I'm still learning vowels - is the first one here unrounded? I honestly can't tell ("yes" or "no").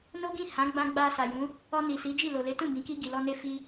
no